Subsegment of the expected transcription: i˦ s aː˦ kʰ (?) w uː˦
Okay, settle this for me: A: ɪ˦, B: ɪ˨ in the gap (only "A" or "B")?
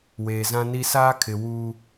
B